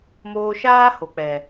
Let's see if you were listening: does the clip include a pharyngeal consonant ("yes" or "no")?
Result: no